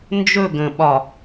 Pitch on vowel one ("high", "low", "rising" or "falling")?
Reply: falling